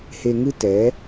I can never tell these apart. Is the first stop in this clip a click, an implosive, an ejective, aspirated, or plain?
plain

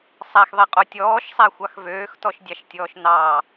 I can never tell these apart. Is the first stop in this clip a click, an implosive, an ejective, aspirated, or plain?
ejective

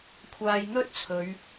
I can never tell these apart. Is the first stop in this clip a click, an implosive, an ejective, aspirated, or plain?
aspirated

